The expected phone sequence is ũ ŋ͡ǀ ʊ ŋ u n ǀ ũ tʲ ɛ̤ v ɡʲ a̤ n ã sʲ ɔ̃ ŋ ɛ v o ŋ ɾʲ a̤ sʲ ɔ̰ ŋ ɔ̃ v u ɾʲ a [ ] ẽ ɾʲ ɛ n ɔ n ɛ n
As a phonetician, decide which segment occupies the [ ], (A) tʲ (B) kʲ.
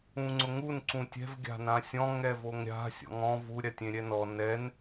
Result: A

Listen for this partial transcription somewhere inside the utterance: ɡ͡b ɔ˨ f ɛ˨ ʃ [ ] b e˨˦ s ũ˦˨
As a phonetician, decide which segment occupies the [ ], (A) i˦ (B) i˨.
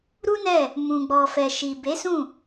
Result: B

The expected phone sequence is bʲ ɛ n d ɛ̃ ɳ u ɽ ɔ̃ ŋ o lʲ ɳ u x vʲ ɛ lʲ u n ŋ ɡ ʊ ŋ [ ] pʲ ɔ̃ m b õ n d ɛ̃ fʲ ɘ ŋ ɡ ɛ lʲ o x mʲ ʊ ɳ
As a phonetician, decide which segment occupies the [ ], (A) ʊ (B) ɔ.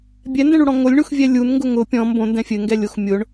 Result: A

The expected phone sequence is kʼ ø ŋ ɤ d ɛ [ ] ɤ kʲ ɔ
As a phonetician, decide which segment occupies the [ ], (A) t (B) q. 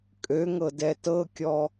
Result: A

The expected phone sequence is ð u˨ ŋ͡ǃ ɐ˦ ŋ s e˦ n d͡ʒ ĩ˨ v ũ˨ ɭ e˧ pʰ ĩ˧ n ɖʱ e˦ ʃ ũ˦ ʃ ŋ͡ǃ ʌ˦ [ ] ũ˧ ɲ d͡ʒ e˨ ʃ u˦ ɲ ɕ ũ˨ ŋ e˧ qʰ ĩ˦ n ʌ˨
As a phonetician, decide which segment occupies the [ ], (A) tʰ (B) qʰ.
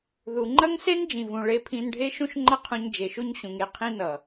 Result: B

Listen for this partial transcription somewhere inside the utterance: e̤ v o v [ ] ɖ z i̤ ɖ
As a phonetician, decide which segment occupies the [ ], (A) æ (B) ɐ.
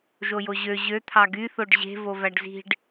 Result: A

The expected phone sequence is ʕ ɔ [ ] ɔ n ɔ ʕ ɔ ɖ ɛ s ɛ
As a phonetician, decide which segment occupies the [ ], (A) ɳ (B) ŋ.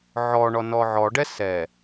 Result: A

